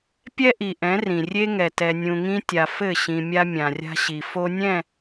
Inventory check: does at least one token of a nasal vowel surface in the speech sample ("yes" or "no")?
yes